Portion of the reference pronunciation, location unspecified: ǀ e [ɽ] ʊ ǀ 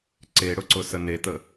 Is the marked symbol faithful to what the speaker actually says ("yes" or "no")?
yes